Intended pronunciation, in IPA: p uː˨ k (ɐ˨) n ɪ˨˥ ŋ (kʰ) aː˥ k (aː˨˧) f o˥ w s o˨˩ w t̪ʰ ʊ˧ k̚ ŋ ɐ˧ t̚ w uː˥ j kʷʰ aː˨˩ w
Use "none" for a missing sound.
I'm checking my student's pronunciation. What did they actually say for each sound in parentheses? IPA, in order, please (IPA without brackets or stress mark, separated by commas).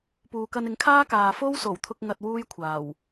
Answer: ɐ˧, kʰ, aː˨